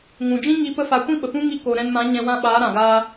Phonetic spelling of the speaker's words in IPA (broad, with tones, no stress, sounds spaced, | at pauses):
ŋ ũ˨ d͡ʒ ĩ˦ ŋ i˧ p ə˦ f a˧ kʷ ĩ˦ ɓ ə˨ p ũ˦ ŋ i˧ k oː˨ ɾ ɛ̃˧ n m ã˨˦ ɲ ɛ̃˧ w ã˦˨ ɓ aː˨˦ ɾ ã˨ ɡ aː˦